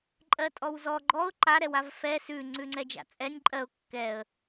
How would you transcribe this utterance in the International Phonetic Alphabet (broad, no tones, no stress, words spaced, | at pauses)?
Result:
ǃʼɜtʼɔwzɔ ɡ͡ǃɔʊ̯ ǃa ɾɛwavfɛ sʉ ŋ͡ǀʉŋ͡ǀɛd͡ʒa̰t͡sʼɛnʲ ǃʼɜʊ̯ kːɛə̯